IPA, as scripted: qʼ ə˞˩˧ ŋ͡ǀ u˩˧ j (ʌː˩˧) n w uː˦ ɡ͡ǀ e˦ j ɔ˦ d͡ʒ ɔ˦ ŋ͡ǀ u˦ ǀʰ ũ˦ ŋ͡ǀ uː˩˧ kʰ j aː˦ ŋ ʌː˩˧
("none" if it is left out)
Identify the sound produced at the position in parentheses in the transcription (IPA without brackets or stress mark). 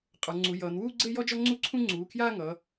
ʌː˩˧